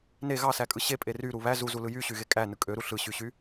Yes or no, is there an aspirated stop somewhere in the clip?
no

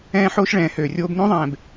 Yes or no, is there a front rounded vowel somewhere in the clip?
yes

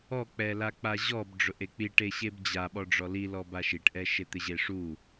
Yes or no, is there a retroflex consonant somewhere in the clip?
yes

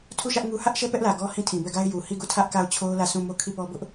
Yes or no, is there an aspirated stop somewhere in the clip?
yes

